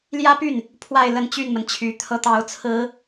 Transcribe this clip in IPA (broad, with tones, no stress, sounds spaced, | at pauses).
l j ä˥ p y˥˩ n | pʰ w a˥˧ ɪ̯ l ə˥˧ n t͡ɕ y˥˩ n m ə˩ n t͡ɕʰ y˧˥ t̪ʰ ɤ˥ t̪ ɑ˧˥ ʊ̯ t͡sʰ ɹ̩˧˥